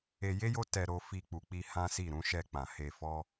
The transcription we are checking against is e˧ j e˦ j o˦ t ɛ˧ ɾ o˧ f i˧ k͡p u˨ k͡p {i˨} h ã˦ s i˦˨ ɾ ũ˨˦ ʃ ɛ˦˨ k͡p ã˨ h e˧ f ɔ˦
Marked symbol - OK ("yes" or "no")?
no